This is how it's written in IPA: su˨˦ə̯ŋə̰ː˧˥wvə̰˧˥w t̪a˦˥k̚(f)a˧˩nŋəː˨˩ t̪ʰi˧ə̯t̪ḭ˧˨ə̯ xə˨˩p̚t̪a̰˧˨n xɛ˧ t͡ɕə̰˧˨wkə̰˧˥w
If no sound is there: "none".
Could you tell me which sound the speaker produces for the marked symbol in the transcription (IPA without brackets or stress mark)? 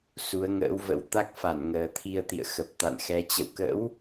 f